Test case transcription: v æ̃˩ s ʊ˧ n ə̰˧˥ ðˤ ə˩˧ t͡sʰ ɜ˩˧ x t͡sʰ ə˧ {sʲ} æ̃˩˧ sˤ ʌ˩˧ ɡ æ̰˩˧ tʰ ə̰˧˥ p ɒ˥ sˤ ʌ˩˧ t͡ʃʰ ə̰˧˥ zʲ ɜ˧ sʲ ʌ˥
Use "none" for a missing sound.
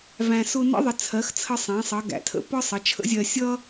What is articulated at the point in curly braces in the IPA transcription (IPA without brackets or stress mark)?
sˤ